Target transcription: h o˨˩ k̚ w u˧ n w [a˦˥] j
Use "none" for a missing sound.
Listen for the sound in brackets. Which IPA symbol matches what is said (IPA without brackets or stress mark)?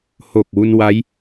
a˦˥